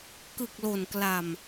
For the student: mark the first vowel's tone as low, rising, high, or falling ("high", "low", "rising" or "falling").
low